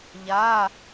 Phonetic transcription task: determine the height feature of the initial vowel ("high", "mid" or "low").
low